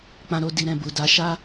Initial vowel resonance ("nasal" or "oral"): nasal